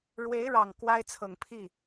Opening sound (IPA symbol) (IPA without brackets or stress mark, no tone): ɻ